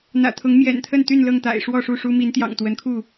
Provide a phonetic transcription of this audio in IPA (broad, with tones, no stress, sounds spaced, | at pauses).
n̪ ä̰˨˩ t̪ʰ ʊ˨˦ ŋ m j ɛ̰˨˩ n t̪ʰ ə˥˨ n t̪ y˥˨ n l ɤ˥˨ ŋ t̪ a̰˨˩ ɪ̯ ʂ w ɔ˥˨ ʂ u˥˨ ʂ u˦ m i˨˦ n t̪ j ɑ̰˨˩ ŋ t̪ w ə˨˦ n kʰ u˥˨